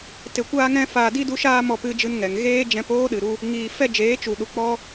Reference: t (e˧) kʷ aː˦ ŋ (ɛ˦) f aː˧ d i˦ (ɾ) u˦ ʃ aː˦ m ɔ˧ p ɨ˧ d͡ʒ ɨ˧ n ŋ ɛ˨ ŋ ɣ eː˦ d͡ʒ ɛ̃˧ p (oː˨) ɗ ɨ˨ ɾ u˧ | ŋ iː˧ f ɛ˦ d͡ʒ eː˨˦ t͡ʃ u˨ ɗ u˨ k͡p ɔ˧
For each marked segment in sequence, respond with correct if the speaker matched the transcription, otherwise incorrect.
correct, incorrect: ɛ̃˦, incorrect: d, incorrect: oː˦

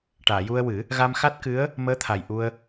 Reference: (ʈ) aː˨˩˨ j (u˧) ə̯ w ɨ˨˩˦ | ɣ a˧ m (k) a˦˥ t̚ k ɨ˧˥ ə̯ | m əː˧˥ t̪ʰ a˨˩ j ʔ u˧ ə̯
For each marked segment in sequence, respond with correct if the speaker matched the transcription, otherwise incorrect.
correct, correct, incorrect: x

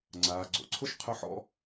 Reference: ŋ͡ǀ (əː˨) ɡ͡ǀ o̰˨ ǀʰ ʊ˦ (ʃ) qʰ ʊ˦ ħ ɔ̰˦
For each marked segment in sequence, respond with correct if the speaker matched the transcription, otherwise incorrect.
incorrect: aː˨, correct

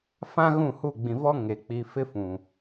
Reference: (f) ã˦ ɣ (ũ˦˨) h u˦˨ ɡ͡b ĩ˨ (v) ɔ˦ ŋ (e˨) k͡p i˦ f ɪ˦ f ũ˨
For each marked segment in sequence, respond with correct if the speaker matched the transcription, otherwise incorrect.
correct, correct, correct, correct

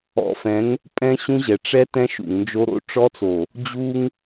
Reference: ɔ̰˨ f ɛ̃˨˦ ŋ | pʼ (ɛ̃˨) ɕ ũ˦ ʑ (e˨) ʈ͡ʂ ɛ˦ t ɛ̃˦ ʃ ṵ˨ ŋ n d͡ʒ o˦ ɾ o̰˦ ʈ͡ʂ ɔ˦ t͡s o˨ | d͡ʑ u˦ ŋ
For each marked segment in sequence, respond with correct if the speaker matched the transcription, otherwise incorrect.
incorrect: ɛ̃˦, incorrect: ɛ˨

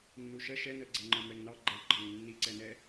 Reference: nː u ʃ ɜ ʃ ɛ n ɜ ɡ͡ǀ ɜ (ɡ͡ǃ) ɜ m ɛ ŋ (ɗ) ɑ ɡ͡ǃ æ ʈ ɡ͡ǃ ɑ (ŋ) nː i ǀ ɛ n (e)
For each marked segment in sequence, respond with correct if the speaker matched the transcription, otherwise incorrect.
incorrect: ŋ͡ǃ, incorrect: n, correct, incorrect: ɛ

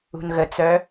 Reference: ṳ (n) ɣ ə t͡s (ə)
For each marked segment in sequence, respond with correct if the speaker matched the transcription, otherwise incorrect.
correct, incorrect: œ

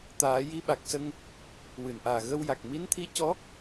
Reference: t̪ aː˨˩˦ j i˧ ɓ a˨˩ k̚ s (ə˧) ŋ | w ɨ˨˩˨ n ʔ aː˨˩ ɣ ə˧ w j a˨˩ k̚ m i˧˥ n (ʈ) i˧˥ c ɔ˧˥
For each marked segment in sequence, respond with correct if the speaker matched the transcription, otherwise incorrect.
correct, incorrect: t̪ʰ

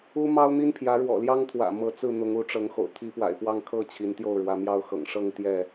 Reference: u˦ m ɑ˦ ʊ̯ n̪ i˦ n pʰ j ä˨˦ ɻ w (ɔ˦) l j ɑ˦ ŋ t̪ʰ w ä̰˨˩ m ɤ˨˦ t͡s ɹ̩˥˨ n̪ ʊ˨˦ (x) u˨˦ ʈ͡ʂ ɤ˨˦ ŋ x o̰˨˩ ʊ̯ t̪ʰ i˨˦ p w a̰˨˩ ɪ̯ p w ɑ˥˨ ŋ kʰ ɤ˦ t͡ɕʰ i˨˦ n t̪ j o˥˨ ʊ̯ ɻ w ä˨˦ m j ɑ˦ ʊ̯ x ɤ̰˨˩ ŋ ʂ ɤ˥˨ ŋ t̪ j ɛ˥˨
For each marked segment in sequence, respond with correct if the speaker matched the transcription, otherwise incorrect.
incorrect: ɔ̰˨˩, incorrect: ŋ

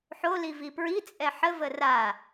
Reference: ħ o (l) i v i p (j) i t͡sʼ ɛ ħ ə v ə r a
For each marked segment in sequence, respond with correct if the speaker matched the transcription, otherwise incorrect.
correct, incorrect: ɹ

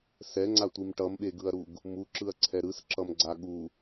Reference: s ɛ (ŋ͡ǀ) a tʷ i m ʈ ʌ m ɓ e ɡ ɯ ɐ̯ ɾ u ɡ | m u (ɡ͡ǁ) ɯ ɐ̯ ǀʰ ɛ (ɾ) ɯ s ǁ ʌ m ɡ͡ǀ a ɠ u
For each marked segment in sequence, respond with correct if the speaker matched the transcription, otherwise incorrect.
correct, incorrect: ǁ, correct

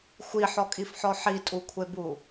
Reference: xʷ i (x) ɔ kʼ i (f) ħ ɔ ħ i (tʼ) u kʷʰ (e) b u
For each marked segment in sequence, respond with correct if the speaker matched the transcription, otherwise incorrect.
incorrect: ħ, correct, correct, correct

